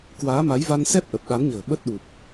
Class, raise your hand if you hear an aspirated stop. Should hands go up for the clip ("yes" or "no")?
no